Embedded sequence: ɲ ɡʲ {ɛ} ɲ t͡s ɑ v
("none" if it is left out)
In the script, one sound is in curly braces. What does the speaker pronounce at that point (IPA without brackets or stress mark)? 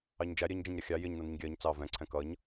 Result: ɜ